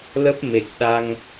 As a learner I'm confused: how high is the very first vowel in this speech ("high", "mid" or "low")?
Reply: mid